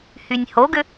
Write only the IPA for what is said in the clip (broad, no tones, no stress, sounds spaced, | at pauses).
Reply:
h y nʲ h o ɡ ʏ